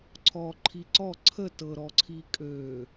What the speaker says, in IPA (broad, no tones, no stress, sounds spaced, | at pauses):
ǀʰ ɔ ǃʰ i ǀ ɔ ǀʰ ə t ɤ ɾ ɔ ǀʰ i kʼ ø